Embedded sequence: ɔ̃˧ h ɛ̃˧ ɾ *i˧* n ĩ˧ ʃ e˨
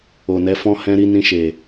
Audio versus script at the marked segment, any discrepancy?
no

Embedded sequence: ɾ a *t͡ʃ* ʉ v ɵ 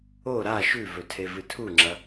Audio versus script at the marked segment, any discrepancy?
yes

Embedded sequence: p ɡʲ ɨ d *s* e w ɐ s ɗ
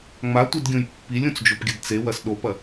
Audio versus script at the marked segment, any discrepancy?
yes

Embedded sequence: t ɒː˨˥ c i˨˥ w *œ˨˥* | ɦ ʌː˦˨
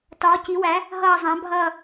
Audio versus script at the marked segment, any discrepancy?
yes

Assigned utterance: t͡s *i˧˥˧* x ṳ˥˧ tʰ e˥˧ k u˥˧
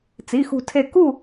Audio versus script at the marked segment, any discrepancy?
no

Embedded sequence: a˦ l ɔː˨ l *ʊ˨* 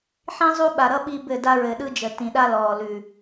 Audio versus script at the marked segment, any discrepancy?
yes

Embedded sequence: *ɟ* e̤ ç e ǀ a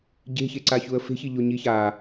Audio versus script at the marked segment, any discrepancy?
no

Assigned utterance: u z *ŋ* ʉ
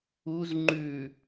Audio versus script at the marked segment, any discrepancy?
yes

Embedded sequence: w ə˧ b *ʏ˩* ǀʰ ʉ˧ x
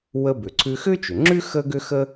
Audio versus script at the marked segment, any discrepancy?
no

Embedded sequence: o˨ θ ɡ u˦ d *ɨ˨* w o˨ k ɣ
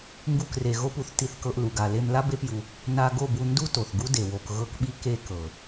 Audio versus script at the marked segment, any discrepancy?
yes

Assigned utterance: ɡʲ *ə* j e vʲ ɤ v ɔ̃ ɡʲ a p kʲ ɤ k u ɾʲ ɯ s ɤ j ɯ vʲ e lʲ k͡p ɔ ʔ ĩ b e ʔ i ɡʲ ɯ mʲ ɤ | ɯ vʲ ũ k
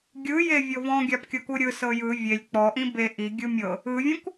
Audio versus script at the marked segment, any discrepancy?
yes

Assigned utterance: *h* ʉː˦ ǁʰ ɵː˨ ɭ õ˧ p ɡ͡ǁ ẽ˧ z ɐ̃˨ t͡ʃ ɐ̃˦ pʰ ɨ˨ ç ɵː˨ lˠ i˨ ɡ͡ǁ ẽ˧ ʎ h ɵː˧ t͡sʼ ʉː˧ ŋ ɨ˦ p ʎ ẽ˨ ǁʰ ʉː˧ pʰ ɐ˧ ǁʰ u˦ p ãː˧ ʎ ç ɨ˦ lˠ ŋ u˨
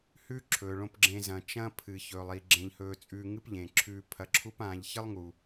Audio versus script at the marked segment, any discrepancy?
no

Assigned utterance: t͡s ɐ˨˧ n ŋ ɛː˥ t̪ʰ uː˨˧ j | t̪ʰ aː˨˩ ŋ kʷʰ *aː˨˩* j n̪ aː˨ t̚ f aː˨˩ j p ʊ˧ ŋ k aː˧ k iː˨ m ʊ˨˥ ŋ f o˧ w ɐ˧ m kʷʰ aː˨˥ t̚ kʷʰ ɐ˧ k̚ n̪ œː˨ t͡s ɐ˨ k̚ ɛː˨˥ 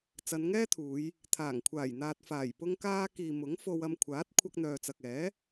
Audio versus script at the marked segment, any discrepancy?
no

